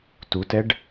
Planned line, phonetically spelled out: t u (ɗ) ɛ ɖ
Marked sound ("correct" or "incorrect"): incorrect